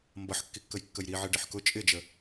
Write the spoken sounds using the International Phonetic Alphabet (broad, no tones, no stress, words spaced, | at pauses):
mbʌħkːikːəjkːəj ɾiʕɪ ɖɪħkʊ t͡ʃʼɪd͡ʒə